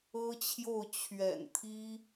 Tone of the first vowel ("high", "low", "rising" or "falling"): high